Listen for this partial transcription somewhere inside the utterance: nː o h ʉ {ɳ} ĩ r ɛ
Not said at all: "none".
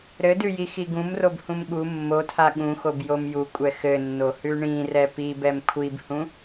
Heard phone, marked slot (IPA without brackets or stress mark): ɳ